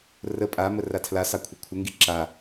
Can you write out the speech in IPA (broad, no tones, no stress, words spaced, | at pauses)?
rə pʼamə ratʰlasɑ kʷʰəkʷʰəŋɡi ǁa